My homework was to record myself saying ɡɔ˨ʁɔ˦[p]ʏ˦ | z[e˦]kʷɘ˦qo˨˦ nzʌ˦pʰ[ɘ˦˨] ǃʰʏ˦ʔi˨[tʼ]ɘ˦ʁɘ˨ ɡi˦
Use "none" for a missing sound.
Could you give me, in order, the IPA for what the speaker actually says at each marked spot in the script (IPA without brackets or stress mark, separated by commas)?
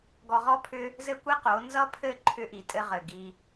pʰ, ɘ˦, ɘ˦˨, tʼ